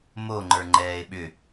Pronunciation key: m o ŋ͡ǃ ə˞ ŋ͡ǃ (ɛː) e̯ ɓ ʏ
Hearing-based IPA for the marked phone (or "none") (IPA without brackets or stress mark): ɛː